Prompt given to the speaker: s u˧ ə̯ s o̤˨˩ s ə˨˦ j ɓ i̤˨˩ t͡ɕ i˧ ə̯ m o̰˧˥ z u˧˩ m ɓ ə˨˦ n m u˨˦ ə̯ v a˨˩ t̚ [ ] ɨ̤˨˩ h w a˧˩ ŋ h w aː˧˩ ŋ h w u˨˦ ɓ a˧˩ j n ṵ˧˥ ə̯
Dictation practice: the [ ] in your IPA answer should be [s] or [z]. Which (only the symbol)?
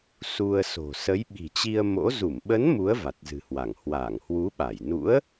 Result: z